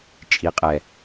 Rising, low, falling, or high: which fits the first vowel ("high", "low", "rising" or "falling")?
low